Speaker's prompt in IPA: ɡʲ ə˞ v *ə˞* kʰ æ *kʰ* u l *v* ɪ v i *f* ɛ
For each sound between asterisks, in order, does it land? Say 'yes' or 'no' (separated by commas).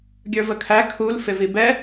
no, yes, no, no